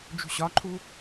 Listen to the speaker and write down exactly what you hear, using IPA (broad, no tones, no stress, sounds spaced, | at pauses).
d͡ʒ ṳ ɕ ɒ ǃʰ u